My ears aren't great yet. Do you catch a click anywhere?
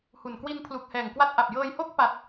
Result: no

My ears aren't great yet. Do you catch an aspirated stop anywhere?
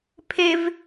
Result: yes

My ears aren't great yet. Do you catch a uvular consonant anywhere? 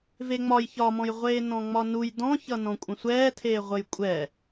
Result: yes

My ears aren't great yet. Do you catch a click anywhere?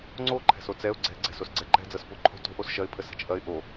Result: yes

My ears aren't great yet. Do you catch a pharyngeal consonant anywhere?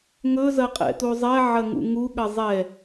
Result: yes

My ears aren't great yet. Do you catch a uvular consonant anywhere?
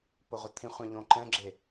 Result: yes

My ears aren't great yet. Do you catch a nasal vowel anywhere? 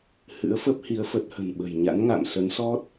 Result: no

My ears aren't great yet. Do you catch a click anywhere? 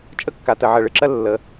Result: yes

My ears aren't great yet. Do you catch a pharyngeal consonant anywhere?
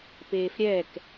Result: no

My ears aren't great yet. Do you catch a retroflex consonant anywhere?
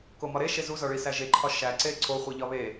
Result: yes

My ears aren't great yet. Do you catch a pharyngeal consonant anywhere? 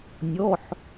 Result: yes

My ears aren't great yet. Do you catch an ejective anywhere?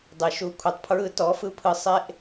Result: no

